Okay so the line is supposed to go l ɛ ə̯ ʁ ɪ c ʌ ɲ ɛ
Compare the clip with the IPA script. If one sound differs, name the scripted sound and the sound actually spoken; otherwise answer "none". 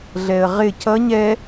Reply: l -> ɮ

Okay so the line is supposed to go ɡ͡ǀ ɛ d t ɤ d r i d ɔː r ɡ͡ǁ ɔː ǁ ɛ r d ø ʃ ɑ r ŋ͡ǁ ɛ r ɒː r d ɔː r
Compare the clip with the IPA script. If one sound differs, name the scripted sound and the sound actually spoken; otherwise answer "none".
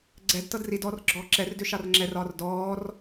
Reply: none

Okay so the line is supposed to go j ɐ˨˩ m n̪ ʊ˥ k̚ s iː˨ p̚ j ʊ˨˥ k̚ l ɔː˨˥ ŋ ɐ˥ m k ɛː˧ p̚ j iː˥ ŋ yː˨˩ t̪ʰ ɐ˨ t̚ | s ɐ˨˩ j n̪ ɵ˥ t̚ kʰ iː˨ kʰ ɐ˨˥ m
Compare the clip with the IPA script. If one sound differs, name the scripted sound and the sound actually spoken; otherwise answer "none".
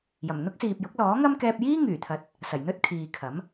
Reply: none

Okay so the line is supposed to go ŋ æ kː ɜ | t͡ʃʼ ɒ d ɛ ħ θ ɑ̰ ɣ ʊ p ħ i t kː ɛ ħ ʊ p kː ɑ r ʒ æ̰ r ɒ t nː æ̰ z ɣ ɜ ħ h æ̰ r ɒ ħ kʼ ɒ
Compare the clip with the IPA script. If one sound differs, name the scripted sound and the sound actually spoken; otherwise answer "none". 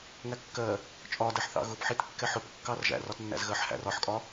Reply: none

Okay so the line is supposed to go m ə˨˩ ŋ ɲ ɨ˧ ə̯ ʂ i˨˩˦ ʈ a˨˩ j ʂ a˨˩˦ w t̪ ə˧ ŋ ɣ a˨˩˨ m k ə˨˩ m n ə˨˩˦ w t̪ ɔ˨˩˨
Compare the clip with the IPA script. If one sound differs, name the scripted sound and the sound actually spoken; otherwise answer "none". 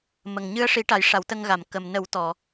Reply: none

